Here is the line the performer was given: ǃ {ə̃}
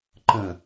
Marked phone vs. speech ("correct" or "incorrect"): correct